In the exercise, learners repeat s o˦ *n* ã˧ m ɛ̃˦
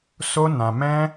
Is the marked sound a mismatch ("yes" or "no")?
no